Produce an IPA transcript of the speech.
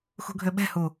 x ṳ ɡʱ ø ɓ ɛ̤ h u

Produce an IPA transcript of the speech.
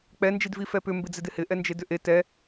k͡p ɛ n d͡ʒ i d v i f ɛ p ʏ m b ɪ d͡z ɪ d ɪ h ɪ ʔ ɛ n d͡ʒ e d ʏ ʔ e t ɛ

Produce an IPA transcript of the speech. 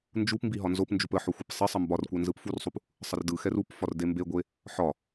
n d͡ʒ u p m b i ɦ ɒ n z o p n d͡ʒ u p ə ħ o xʷ e p sˤ ə sˤ ə m b ɒ r kʷ ɛ n z ɯ p f u r sˤ u p | sˤ ə r d ɯ x ɛ r u p f ɒ r d e m b e ɡʷ e | ħ ɒ

